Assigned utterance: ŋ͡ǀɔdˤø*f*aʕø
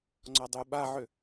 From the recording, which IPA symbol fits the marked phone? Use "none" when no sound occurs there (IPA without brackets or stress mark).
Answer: ɓ